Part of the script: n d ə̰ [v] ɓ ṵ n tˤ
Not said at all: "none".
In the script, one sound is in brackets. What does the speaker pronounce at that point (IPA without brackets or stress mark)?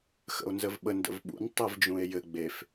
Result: v